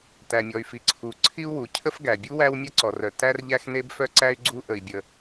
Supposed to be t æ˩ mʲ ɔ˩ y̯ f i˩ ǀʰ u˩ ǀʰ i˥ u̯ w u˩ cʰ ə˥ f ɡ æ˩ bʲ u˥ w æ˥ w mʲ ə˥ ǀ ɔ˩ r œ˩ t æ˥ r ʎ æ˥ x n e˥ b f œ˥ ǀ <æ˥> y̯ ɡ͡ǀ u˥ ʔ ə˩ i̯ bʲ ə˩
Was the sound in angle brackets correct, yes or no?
yes